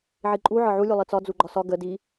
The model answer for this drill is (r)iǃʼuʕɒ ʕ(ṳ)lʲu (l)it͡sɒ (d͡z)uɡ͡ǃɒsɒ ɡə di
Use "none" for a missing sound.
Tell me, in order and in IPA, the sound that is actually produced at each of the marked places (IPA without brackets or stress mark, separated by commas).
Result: ʕ, u, lˠ, d͡z